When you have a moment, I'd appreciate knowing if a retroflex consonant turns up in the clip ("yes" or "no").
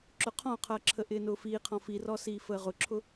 no